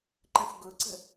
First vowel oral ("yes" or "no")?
no